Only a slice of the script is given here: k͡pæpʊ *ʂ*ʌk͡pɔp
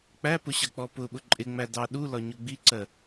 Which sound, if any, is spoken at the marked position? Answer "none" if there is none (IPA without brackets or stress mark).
ɕ